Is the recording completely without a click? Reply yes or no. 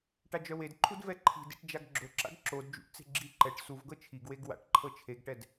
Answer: no